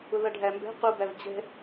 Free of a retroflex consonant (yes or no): no